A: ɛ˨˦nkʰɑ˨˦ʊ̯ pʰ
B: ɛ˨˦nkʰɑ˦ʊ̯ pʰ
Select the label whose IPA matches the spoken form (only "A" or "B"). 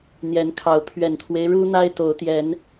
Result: A